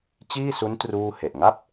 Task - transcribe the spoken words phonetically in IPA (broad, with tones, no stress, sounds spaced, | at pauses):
t͡ɕ iː˥˩ s u˦˥ n t r uː˥˩ h e˨˩ ʔ ŋ a˥˩ p̚